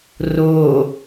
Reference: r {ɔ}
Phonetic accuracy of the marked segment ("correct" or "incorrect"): incorrect